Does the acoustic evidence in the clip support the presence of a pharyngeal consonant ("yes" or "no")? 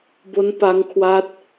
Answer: no